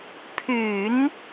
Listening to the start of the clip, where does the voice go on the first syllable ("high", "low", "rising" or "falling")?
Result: low